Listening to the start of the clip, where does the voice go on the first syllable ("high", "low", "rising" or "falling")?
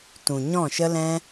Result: low